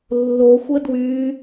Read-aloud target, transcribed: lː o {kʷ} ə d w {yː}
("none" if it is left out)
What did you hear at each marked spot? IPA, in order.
xʷ, yː

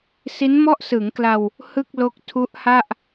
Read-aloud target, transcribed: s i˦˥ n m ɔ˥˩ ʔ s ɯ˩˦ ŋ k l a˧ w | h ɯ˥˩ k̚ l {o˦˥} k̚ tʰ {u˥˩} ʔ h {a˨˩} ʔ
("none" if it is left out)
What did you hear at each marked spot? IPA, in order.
o˦˥, u˦˥, a˥˩

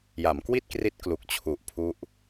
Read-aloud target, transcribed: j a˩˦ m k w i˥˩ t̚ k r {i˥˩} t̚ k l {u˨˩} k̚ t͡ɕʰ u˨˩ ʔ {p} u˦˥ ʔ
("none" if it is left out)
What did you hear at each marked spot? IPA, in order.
i˦˥, u˨˩, pʰ

